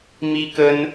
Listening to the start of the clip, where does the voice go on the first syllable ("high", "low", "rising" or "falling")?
high